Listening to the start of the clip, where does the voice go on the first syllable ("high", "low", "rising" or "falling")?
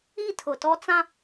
falling